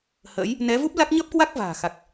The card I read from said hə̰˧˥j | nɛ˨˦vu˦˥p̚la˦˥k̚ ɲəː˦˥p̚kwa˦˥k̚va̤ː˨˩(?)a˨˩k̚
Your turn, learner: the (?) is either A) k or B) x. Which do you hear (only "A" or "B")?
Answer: B